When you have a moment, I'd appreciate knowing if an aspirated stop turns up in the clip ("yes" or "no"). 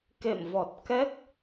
no